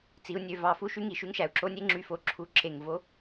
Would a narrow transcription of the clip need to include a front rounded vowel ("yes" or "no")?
yes